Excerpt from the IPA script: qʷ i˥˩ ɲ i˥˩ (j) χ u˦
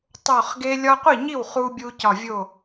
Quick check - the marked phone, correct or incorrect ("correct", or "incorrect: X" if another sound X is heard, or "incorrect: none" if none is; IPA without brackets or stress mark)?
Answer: incorrect: w